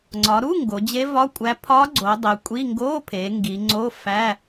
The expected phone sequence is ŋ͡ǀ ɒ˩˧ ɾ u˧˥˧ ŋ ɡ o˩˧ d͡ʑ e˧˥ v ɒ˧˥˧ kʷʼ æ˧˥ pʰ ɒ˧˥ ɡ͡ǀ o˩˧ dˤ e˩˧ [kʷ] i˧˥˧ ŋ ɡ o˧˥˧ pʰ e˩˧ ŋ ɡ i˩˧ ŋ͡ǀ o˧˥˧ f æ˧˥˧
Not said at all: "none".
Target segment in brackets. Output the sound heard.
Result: kʷʼ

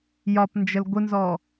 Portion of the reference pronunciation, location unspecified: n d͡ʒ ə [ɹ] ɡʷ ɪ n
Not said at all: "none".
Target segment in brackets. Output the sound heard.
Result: l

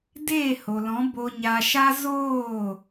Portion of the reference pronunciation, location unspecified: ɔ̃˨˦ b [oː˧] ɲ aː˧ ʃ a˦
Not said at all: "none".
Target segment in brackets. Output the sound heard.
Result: o˧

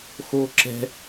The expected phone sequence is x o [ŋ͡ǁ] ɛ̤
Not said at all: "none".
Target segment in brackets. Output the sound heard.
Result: ǁ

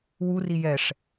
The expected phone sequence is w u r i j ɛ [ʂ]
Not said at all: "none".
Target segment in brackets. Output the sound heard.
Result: ʂ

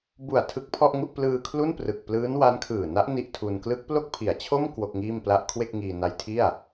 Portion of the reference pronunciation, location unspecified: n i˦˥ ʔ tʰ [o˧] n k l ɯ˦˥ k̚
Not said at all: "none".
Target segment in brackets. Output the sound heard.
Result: u˧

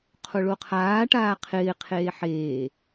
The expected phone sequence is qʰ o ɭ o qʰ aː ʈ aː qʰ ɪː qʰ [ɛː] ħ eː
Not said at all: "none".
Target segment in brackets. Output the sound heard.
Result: eː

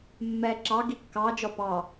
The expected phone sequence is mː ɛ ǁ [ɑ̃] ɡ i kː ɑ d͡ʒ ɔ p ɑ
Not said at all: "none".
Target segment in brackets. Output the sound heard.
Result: ɑ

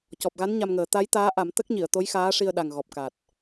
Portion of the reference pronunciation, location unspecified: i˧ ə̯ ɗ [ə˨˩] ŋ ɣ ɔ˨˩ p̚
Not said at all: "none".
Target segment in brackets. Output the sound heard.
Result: a˨˩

